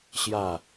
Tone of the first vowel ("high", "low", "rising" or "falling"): falling